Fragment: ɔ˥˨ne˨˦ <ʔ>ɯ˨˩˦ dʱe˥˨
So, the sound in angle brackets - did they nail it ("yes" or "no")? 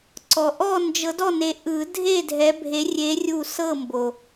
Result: yes